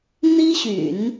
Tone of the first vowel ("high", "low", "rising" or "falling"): high